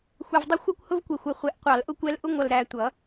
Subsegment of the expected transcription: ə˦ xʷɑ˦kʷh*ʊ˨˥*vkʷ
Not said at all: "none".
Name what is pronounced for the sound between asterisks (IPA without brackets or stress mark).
ʊ˦